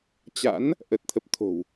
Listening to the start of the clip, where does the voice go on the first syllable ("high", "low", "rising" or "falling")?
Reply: rising